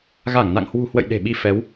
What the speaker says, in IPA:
ɣ a˧˩ ŋ n a̰˧˨ ŋ h w ṳ˨˩ h w ə̰˧˨ j ɗ e̤˨˩ ɓ i˧ f ɛ˨˦ w

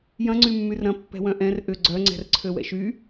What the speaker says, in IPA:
j ɐ̃ ŋ͡ǀ y mː y r ɾ ɐ̃ pː ɛ̤ w œ̃ ʔ ɛ̃ r ʔ ʏ ɡ͡ǀ œ ŋ͡ǀ ɛ̤ r ǀʰ ø w ɛ̰ ʃ y

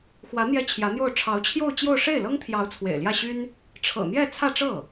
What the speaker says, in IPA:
x w ä˧˥ n̪ j ɛ˥ t͡ɕʰ j ä˧˥ n̪ j o˥˩ ʊ̯ ʈ͡ʂʰ ɑ˧˥ ʊ̯ t͡ɕʰ j o˥˧ ʊ̯ t͡ɕ j o˥˧ ʊ̯ ʂ e˥˩ ɪ̯ l ɤ˥ ŋ t̪ʰ j ɑ˧˥ ʊ̯ t͡sʰ w ḛ˨˩ ɪ̯ l j ä˥˩ ɕ y˥ n | ʈ͡ʂʰ ɤ̰˨˩ n̪ j ɛ˥˧ t͡sʰ ä˥˧ ʈ͡ʂ ɤ˥˩

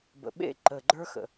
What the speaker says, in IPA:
b ə̰˨ ɓ ḛ˦˨ ǃ ə˨ ɡ͡ǃ ə˞˦ x ə̰˨

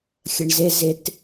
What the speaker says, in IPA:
xʲ ə ɳ z ɪ z ɪ t

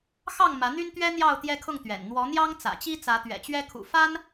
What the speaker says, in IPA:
x ɑ˥˨ ŋ m ä˨˦ n̪ y˦ n t̪ ɥ ɛ˦ n̪ j ɑ˥˨ ʊ̯ t̪ j ɛ˦ kʰ ʊ˥˨ ŋ t̪ ɥ ɛ̰˨˩ n n̪ w ɔ˨˦ n̪ j ɑ˦ ŋ t͡s ä̰˨˩ t͡ɕ i˦ t͡s ä˨˦ t̪ ɥ ɛ̰˨˩ t͡ɕ ɥ ɛ˦ kʰ ṵ˨˩ f a˦ n

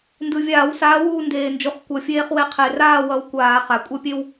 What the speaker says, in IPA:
n d ɯ˨˩ vʲ aː˧˩˧ w s aː˨˦ w uː˦˨ n d eː˨˩ n d͡ʒ u˨˩ χ kʷ ʌ˨˩ fʲ eː˦ χ w e˦ qʰ e˨˩ r aː˦˨ w ʌ˨˦ w kʷ aː˧˩˧ χ a˨˩ kʷʼ ʌ˦˨ pʲ e˦ w

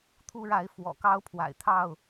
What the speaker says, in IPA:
t̪ʰ u˦ ɻ a˨˦ ɪ̯ f w ɔ̰˨˩ k ɑ˦ ʊ̯ pʰ w a̰˨˩ ɪ̯ t̪ʰ ɑ˥˨ ʊ̯

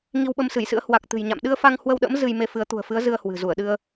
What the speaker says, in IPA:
ŋ i˧ w ɓ ə˧ m s ɨ˧˩ j s ɨ̰˧˥ ə̯ h w a˨˩ k̚ t̪ ɨ̤˨˩ j ɲ a̰˧˨ m ɗ ɨ˧ ə̯ f a˧ ŋ h w ə˧ w ɗ ə̰˧˥ m z ɨ˧ j m e˧ f ɨ˨˦ ə̯ t̪ ṳ˨˩ ə̯ f ɨ˨˦ ə̯ z ɨ˧ ə̯ h w ɨ̤˨˩ z u˧˩ ə̯ ɗ ɨ˧ ə̯

